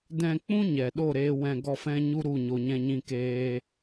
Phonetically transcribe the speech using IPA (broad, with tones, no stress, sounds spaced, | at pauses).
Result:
d ɛ̃˧ k͡p ũ˦ ɲ ɛ˨ ɗ o˦˨ ɾ eː˧ w ɛ̃˧ ɡ ɔ˦ f ɛ̃˦ ɲ u˦ ɾ u˦˨ ɲ o˧ ɲ ɛ̃˦ ɲ ĩ˦ k eː˦